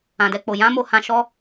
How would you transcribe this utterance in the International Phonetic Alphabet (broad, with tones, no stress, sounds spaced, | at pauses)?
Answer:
ã˨ d ɛ˧ k͡p o˨ j ã˨˦ m o˦˨ h ã˧ ʃ ɔ˦